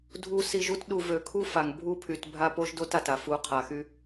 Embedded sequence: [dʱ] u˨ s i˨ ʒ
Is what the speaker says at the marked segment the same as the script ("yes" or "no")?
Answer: yes